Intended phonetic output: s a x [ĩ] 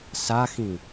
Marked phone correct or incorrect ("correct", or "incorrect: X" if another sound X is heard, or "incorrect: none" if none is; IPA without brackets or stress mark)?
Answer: correct